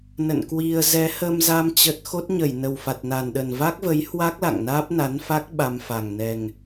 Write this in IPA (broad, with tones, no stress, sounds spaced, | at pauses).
n ə̰˧˨ n k w i˧ ə̯ z ɛ˨˦ h ə˧ m z a˧ m t͡ɕ ə˦˥ t̚ x o˦˥ t̚ ɲ ə˧˩ j n ə˨˩ w f a˨˩ t̚ n a˨˩ n ɗ ə˨˩ n v a˦˥ k̚ v ə˨˦ j h w a˦˥ k̚ l a̰˧˨ ŋ n aː˦˥ p̚ n a˨˦ n f a˦˥ k̚ ɓ a˧ m f a˨˩ ŋ n ɛ˨˩ ŋ